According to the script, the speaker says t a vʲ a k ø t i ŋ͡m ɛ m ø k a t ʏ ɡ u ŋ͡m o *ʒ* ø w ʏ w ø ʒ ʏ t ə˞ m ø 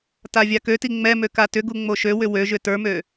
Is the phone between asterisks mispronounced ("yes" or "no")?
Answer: yes